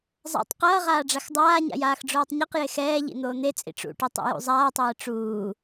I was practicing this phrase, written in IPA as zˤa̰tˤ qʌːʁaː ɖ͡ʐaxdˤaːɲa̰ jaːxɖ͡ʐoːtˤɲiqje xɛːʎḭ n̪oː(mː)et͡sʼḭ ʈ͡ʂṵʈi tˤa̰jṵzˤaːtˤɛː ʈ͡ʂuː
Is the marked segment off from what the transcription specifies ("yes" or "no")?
yes